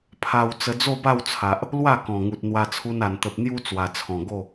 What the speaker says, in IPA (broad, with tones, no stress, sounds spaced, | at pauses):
pʰ a˧ w t͡s ə˧ d͡z o˥˧ b a˥˧ w t͡sʰ a˨ ʔ | l w a˥˧ k ɔ̃˨˩ ŋ u˨ t̚ n̪ w a˧ t͡sʰ u˧ n a˨˩ n t̪ ə˨ p̚ n̪ j u˦ t͡s w a˨˩ t͡sʰ ɔ̃˨˩ ɡ o˥˧